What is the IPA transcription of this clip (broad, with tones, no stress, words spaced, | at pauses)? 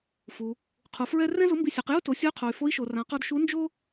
fu˩ | qʰu˩fɹɛ˥ rɛ̃˥zʊ˧˥mbi˧sʲe˩˧q ju˥to˩˧sʲʊ˧˥y̯qʰo˩y̯ fo˧˥i̯ʃo˩rã˩˧ qɔ˧dʃu˧˥ nd͡ʒo˥